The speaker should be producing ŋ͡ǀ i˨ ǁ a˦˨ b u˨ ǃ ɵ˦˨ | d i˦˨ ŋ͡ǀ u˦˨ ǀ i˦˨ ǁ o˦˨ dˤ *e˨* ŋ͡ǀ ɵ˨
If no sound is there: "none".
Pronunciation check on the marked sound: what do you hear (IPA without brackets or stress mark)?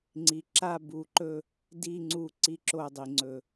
i˨